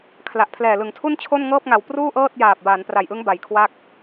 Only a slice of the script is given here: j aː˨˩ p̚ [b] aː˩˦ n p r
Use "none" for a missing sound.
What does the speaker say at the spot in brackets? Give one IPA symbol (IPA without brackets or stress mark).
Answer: b